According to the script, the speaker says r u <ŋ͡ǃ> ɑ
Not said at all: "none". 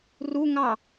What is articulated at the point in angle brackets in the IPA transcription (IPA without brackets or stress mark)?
ŋ